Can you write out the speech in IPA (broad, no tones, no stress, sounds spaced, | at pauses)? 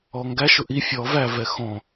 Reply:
ɔ ŋ ɡ æ ʃ ʊ ʔ i fʲ ɔ v æ v ɛ x ɔ̃